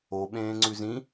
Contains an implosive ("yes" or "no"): yes